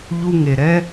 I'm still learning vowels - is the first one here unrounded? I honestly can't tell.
no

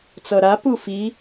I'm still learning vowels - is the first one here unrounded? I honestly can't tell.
yes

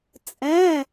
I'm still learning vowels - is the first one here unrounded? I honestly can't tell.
yes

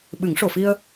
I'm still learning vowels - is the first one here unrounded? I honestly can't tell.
yes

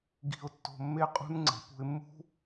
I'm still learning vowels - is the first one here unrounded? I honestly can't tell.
yes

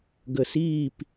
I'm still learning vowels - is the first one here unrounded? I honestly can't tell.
yes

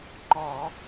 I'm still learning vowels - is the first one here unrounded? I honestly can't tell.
no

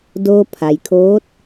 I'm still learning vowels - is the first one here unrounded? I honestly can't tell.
no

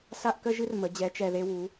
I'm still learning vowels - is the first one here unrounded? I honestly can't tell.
yes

